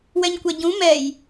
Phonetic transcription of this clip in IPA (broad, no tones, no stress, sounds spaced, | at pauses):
w ɛ ɲ kʷ ɛ ɟ ũ m ɛ j